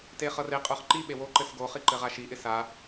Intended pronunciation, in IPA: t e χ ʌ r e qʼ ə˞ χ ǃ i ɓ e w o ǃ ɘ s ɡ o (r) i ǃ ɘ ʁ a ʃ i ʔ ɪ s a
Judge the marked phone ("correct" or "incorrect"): incorrect